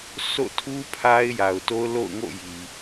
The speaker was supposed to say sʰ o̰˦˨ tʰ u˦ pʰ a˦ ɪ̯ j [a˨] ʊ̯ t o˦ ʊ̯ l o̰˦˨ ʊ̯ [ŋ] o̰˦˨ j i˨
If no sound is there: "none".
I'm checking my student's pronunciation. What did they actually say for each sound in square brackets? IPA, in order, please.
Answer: a˨, ŋ

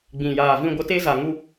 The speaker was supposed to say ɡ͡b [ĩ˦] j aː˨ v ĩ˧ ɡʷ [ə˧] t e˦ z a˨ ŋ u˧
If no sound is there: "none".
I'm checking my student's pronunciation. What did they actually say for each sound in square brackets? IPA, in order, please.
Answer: ĩ˨, ə˧

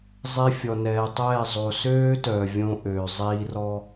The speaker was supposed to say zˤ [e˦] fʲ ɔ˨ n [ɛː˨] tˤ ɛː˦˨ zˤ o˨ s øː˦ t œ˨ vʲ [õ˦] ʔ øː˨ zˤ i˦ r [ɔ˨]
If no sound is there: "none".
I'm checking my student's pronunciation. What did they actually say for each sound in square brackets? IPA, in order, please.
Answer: e˦, ɛː˨, õ˦, ɔ˦

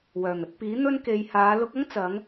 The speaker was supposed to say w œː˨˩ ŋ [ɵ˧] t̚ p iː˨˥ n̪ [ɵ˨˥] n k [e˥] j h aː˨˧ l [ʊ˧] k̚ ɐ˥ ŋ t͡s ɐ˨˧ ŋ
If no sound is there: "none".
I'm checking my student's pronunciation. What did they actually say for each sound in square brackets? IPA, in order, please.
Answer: ɵ˧, ɵ˥, e˨˧, ʊ˧

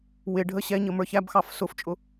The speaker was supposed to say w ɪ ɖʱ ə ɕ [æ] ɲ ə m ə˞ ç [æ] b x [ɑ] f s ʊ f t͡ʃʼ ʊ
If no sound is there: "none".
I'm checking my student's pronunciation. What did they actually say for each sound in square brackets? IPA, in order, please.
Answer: ɛ, æ, ɑ

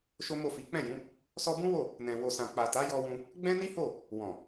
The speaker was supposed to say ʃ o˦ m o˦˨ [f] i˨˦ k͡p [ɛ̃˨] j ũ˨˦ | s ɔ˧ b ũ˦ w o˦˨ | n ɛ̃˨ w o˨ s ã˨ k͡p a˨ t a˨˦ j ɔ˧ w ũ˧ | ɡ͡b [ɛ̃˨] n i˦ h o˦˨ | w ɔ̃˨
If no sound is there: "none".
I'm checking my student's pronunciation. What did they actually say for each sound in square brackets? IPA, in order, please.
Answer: f, ɛ̃˦˨, ɛ̃˦

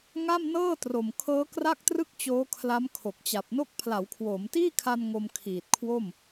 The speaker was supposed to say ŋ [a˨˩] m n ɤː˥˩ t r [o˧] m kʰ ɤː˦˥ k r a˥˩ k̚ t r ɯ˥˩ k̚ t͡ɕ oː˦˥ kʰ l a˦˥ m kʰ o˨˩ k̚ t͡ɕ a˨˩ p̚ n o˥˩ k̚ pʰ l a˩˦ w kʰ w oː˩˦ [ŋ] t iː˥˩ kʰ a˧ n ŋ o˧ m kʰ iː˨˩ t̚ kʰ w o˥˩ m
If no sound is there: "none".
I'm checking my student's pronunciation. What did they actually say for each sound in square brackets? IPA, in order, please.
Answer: a˥˩, o˨˩, m

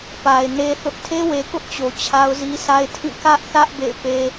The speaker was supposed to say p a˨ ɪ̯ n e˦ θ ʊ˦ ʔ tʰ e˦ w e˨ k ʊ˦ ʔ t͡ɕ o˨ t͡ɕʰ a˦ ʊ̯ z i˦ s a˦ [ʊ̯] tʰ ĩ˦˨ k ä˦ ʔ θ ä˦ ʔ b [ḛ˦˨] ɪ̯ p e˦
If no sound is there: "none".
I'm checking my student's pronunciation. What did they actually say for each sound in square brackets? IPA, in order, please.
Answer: ɪ̯, ḛ˦˨

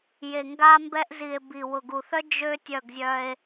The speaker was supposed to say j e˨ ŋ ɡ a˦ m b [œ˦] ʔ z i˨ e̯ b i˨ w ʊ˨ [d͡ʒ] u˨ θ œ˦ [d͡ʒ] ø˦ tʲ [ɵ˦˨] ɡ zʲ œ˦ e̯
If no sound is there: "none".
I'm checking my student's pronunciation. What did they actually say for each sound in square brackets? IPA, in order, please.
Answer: ɛ˦, ɡ, d͡ʒ, œ˦˨

